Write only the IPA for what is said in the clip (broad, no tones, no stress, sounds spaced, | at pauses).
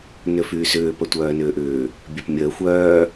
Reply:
n ʏ f yː s ʏː p ə tʷ œː n ʏː ʔ ʏː | bʲ œ p mʲ əː xʷ œː